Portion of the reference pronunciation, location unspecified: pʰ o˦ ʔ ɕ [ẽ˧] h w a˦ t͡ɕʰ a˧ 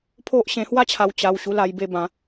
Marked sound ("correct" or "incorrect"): correct